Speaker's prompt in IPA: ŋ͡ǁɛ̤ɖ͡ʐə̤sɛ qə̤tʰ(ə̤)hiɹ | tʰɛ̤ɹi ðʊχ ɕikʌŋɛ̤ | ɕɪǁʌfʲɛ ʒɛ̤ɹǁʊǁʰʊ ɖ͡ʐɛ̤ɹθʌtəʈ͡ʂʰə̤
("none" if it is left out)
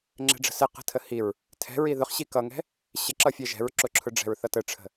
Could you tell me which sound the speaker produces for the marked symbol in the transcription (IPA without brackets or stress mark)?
ə